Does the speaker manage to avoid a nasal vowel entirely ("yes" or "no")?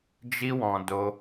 no